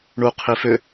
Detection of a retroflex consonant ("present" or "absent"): present